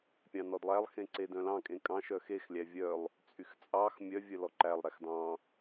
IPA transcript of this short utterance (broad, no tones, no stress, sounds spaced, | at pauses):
pʲ ɑ̃ n ɔ d lˠ æ lˠ x ẽ ǀ e d œ̃ l ɑ̃ kʼ ẽ kʼ ɑ̃ ʃ œ x e x lʲ æ vʲ œ lˠ | t͡sʼ y x t͡sʼ ɑ x mʲ œ vʲ œ l ɔ ǃ æ lˠ ɾ æ x d ɑ̃